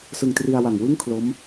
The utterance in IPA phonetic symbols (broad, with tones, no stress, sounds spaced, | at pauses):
s ɯ˧ ŋ t r i˧ a̯ w a˨˩ ŋ w ɯ˥˩ ŋ kʰ l o˦˥ m